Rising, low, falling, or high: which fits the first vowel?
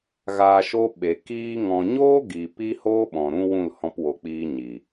low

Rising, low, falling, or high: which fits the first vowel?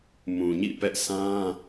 low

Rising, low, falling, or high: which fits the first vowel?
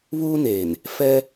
high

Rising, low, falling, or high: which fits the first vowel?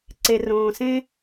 low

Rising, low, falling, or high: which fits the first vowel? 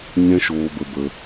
high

